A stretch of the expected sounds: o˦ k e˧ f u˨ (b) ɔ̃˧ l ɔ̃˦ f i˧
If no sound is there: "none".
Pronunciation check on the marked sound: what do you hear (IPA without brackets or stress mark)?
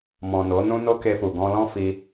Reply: ɡ